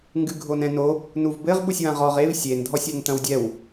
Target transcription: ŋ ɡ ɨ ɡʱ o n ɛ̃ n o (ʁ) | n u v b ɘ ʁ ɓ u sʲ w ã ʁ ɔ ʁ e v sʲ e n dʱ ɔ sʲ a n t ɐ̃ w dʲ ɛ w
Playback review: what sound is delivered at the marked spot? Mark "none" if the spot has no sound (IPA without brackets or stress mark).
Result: none